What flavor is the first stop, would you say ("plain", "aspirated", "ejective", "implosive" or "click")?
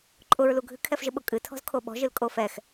click